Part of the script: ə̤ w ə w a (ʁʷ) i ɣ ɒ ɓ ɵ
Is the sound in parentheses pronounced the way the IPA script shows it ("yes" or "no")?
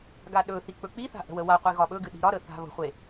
no